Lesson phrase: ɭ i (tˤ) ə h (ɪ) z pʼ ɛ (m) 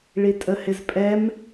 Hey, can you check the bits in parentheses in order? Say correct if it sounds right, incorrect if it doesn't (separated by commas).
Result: incorrect, correct, correct